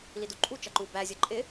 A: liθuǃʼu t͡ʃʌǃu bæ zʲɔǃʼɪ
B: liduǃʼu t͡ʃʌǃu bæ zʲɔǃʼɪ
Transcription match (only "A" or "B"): B